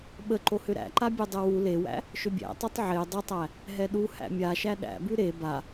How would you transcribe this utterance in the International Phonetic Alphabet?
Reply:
ɓ ə ǃ o h ʏ ɾ æ̰ ǃ a bʲ o dˤ ɛ w u l e w æ̰ | ʃ ʏ bʲ æ̰ tˤ o tˤ ʕ e dˤ ə tˤ æ | ɦ ɛ ɗ u h æ̰ mʲ a ʃ æ ɗ æ̰ b ʉ ɾ e b a

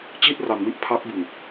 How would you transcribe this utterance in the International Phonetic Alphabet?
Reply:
t͡ɕ i˥˩ t̚ r a˧ n m i˦˥ ʔ pʰ a˦˥ k̚ b ɯ˧ ŋ

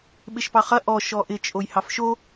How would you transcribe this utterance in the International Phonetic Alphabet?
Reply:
ɓ ɪ ʃ p ɑ χ ɐ ʔ ɔ ʃ ɔ ʔ ɪ t͡ʃʼ o j h ɑ f ʃ o

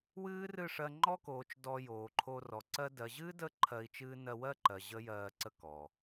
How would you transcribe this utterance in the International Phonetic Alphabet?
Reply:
w ɨː˦ r ɨ˦˨ ʂ ɜ˧ ŋ͡ǃ ɔ˦ k oː˨ t͡ʃ d ɔ˧ j oː˨ ǃʰ o˧ r ɔ˨ ǀ ɜ˦ d ɜ˨ ʑ ɨː˦ d ə˦˨ ǃʰ ɜ˧ i̯ t͡ʃ ɨː˦ n ɜ˧ w ɜ˦ ǃ ɜ˨ ʑ ə˦ j ɜː˧ ǀ ə˦ k ɔ˨

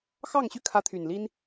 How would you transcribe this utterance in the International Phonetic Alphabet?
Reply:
x ɑ˥˨ ŋ ɕ y˥˨ kʰ ä˨˦ t̪ʰ y˨˩ n l i˦ n

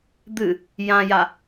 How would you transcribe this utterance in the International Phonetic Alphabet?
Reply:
d̪ ɨ | j ã j a

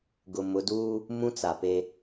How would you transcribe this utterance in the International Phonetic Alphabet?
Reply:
ɡ ʊ˨ m ʊ˨˦ d uː˦ | m ũ˦ t͡s a˨ p e˦

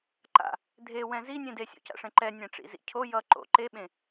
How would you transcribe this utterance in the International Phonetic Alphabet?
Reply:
ǃ a̰ | dʱ e w ɛ̃ z i nʲ ẽ d e sʲ o̰ c a̰ ʂ ɛ̃ ǃ ɛ nʲ ɛ̃ ʈ͡ʂ ḭ z ḭ cʰ o j ʌ ǃ o̰ ǃ e ɓ ẽ

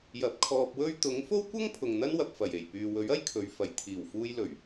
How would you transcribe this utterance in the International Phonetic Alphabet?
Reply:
j ɐ˨˥ p̚ kʰ ɔː˧ p̚ w ɵ˥ ɥ t̪ ʊ˨˥ ŋ f o˥ w kʷ ɐ˥ ŋ pʰ ʊ˨ ŋ n̪ ɐ˥ n w ɐ˨ p̚ f ɐ˨˩ j e˨˩ j p yː˨ w ɵ˨˥ ɥ ɐ˥ j kʰ ɵ˨˧ ɥ f ɐ˨˩ j t̪ʰ iː˨˩ w f uː˧ j l ɵ˨˩ ɥ

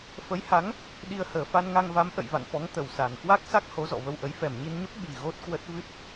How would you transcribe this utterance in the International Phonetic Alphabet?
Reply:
f ə˨˦ j h a˨˦ ŋ | ɗ i˧ ə̯ h əː˨˩ f a˧ n ŋ a˧ ŋ v a˨˦ m ʔ ə̰˧˨ j v a̰˧˨ n f ɔ˨˦ ŋ t̪ ə˨˩ w s a˨˩ n k w a˦˥ k̚ s a˦˥ k̚ h o˨˦ z ɔ̰˧˨ v ə˧ w ʔ ə˨˦ j f ɛ˨˩ m ɲ i˧ n ɲ ə˦˥ p̚ ɓ i˨˩ ɣ o˦˥ t̚ k w ə˦˥ t̚ v ɨ˦˥ t̚

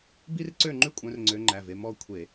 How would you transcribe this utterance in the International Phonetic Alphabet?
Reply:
b i˥ r ǀ ø˥˨ ŋ͡ǃ ʉ˥ kʷʼ œ̃˨˦ r ŋ͡ǀ ø˨˦ ŋ͡ǃ æ˩˧˩ v e˥˨ m ɔ˥˨ kʷʰ e˧˩˧

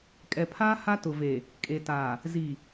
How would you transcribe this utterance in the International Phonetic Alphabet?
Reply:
kʼ ɛ˨ pʰ aː˦ h a˦ t ʊ˨ v e˨ | kʼ e˨ t aː˨ | z i˨

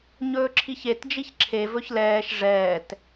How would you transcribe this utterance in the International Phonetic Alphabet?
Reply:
ɲ ɵː ǁʰ i ç e t d͡ʒ i ç ǁʰ e v ɵ ç l ɛː ʃ ʐ ɛː t

